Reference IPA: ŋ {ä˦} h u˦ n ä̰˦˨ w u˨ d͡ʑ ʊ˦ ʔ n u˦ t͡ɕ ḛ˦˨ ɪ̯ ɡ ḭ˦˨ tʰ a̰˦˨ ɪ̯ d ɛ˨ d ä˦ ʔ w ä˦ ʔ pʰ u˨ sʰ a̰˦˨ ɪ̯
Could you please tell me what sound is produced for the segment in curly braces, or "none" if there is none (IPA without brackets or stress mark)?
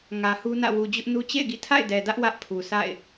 ä˨